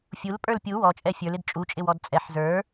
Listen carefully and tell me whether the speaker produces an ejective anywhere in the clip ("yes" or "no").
yes